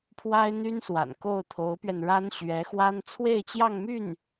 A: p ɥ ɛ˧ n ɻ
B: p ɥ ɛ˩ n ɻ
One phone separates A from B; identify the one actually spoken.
A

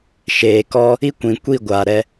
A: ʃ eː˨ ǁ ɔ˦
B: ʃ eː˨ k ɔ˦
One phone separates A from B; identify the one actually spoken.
B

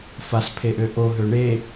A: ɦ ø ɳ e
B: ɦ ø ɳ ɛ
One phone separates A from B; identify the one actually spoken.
A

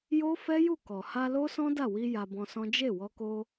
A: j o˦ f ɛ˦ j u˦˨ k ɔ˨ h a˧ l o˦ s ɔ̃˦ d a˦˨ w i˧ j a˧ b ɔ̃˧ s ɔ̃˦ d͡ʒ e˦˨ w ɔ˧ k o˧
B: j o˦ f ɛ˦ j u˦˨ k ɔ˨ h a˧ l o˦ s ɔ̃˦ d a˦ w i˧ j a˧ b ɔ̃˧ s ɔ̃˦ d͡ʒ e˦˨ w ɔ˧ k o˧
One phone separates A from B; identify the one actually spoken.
A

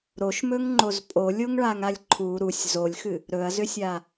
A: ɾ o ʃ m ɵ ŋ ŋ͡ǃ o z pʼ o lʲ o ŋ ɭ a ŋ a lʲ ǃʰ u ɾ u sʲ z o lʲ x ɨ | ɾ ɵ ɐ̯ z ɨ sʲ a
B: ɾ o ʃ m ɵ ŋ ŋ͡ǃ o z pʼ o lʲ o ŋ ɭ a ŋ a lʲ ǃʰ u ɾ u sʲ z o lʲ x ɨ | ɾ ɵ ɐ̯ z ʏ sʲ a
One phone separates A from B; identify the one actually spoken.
B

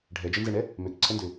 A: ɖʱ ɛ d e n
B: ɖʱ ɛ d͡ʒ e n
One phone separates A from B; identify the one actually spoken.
B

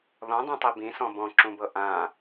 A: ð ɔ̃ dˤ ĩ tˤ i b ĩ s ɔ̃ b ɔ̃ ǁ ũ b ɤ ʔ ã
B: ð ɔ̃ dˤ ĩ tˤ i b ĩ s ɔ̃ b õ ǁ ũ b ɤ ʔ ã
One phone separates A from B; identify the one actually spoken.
A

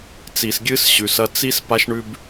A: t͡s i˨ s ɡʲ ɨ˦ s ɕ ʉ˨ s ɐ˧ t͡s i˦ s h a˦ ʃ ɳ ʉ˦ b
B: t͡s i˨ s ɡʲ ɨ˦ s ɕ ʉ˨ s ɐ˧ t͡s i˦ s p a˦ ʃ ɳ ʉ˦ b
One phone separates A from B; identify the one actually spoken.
B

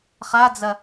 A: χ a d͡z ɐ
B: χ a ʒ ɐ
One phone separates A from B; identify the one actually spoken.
A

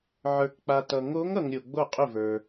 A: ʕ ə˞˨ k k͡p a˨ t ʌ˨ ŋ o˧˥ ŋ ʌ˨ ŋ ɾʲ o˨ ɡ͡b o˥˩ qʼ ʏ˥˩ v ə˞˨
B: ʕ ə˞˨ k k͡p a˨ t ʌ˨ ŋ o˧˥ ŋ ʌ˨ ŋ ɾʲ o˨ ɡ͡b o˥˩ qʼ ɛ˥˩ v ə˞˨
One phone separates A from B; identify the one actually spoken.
A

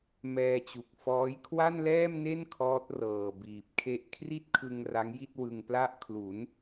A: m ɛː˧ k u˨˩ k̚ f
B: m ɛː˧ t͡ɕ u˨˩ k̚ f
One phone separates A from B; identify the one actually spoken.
B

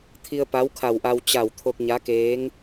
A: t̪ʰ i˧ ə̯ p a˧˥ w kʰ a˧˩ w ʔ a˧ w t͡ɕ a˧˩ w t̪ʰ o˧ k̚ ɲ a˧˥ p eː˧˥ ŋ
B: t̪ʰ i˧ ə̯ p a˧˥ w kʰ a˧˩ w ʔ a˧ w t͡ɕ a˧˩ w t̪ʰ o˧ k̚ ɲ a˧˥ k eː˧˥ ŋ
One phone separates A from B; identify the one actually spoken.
B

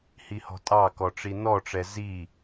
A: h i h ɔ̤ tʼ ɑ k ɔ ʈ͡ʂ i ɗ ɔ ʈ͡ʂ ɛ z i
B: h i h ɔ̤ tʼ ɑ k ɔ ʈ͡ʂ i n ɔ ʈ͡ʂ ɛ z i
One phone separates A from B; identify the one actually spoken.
B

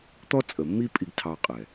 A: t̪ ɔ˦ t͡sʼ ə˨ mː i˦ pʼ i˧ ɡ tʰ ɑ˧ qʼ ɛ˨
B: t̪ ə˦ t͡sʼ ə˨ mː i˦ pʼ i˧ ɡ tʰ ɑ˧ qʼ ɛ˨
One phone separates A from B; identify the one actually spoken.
A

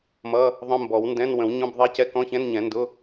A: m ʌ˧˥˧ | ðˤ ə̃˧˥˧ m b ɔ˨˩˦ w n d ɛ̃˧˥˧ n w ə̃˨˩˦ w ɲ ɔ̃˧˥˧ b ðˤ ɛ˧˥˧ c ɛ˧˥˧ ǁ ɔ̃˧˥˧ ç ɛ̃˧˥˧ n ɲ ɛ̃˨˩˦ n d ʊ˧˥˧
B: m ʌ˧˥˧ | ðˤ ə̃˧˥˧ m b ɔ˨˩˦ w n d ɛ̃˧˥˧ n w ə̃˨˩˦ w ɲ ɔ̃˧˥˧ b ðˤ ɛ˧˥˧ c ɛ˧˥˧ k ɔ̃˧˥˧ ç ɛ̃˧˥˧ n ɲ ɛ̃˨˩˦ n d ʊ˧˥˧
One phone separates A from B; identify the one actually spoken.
B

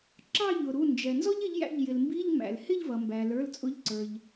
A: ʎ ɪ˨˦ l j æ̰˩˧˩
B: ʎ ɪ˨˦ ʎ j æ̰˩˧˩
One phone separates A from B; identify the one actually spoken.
B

